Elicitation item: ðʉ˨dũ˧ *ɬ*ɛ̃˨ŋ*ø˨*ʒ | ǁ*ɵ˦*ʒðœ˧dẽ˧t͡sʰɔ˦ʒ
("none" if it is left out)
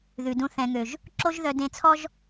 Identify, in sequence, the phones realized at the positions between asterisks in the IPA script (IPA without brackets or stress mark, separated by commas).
θ, ø˨, o˦